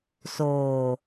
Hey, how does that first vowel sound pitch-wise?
low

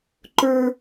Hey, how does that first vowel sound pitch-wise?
high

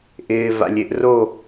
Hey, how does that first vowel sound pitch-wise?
low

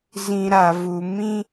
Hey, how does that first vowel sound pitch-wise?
low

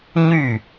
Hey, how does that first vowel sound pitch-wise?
falling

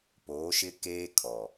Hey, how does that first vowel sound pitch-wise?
rising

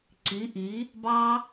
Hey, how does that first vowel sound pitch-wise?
rising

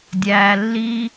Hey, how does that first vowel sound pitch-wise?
low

